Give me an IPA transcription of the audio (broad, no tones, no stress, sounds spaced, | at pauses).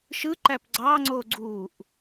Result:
ʃ ɯ ǃ æ p ɡ͡ǀ ɑ ŋ͡ǀ o ɡ͡ǀ uː ʔ